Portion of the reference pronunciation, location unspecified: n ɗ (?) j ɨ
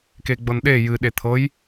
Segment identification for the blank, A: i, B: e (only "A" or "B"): B